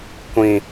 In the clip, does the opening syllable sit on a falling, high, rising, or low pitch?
low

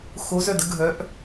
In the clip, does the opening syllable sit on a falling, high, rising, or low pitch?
rising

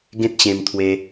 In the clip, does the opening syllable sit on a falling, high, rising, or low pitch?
high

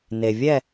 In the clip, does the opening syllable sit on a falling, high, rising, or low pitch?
low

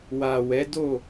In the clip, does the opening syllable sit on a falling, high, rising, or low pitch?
low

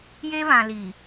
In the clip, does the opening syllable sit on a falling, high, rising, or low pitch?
high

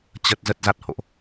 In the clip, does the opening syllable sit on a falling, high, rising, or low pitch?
low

